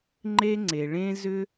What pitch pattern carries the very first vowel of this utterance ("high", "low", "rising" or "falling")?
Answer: high